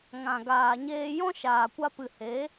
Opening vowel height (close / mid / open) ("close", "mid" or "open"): open